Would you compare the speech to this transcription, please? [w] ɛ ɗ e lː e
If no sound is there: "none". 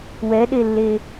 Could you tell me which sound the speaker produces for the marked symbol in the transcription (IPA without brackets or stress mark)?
w